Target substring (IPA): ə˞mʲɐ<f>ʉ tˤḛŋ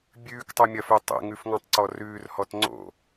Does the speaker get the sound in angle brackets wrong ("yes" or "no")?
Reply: no